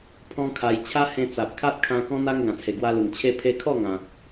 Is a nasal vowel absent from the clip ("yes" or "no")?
no